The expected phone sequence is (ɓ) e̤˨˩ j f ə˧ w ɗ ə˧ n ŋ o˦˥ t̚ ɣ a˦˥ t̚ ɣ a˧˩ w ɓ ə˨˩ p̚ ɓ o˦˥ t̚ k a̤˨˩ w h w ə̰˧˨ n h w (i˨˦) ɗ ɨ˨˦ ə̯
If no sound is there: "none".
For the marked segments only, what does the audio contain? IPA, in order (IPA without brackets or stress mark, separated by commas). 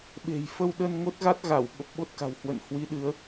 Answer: ɓ, i˨˦